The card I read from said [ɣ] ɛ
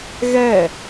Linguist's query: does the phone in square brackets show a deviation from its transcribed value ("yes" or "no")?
no